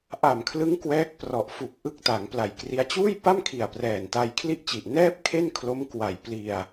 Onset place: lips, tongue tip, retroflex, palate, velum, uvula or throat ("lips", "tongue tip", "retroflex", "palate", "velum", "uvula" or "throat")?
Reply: throat